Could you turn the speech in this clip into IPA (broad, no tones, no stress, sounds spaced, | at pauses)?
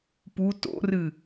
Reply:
p u t o̰ r ɨ